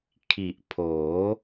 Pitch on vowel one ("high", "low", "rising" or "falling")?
low